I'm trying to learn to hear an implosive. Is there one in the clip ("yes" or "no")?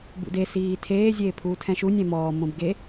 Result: no